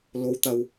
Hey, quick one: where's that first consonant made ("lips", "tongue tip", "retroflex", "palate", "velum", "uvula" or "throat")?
tongue tip